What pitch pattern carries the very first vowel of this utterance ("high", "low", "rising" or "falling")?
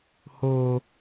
high